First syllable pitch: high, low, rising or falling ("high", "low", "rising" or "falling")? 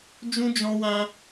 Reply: high